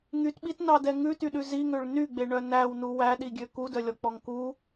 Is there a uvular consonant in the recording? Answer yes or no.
no